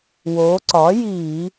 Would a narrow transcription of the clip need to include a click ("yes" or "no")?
yes